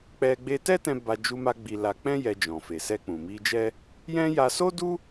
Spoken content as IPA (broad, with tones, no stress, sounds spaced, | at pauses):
k͡p ɛ˧ ɡ͡b e˧ t ɛ˦ t ɛ̃˧ b a˧ d͡ʒ u˧ m a˧ ɡ͡b i˧ l a˧ k͡p ɛ̃˦ j ɛ˧ d͡ʒ ɔ̃˨ f e˨ s ɛ˧ k͡p ũ˨ m i˧ d͡ʒ ɛ˦ | j ɛ̃˦ j a˧ s o˦ d u˦